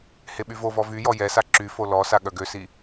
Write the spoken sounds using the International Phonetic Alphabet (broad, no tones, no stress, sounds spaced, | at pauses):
h e ɓ y v o v ɔ v y j ɔ j ɛ s a ǁ y f o l ɔ s a ɠ œ ɡ ø s i